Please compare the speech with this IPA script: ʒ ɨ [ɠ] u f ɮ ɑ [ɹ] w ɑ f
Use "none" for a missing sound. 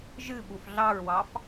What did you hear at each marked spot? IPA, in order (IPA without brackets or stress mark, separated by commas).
ɓ, ɹ